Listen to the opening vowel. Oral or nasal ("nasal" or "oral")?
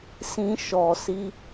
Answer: nasal